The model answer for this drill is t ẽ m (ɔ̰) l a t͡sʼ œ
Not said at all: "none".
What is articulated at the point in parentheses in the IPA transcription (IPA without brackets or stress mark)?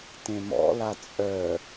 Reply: ɔ̰